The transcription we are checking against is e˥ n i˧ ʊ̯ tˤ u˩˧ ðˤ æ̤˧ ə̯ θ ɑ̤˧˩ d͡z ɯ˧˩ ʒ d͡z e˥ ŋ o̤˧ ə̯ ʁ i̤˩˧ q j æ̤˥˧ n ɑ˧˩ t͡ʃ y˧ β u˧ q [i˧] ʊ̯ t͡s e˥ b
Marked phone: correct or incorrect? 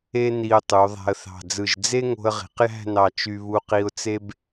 correct